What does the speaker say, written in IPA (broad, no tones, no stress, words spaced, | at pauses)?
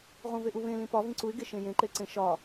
ʁũveʔuβẽ lĩpɒ vĩǀuɪ̯ ɡeʃẽjẽ ǃeǀẽʃɒ